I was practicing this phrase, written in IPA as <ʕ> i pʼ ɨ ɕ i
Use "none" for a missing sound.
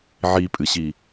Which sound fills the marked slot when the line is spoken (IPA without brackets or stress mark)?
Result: ʕ